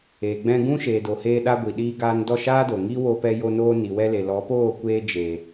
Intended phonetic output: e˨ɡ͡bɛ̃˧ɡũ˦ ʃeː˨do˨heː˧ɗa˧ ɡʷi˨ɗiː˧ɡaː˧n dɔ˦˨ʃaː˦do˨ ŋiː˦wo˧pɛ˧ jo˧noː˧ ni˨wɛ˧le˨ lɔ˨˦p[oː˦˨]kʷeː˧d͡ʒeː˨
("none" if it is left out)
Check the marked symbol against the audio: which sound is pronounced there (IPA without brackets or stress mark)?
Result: oː˦˨